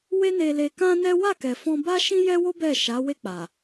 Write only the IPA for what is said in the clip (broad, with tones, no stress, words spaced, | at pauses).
we˦ ne˧le˧kã˦nɛ˦ wa˦˨kɛ˨fɔ̃˧ ba˦ʃĩ˦jɛ˦wo˦ bɛ˦˨ʃa˨˦ we˦˨k͡pa˨